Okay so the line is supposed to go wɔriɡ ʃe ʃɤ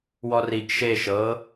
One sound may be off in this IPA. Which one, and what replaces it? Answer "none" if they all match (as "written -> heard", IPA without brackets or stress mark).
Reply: none